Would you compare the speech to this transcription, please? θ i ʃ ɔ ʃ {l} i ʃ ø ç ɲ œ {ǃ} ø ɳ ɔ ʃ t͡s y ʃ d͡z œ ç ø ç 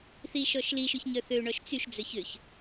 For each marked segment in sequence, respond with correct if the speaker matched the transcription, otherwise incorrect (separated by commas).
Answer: correct, incorrect